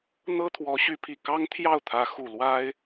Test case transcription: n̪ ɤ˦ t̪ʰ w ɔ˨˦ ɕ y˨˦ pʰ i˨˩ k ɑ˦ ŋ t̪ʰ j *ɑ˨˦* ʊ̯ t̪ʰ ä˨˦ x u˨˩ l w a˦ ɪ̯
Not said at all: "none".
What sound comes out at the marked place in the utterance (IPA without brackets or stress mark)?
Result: ɑ˥˨